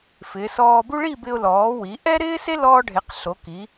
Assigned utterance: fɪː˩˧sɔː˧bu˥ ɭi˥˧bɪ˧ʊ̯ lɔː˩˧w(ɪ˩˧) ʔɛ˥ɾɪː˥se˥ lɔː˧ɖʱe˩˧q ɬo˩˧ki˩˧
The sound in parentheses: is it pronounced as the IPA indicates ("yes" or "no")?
no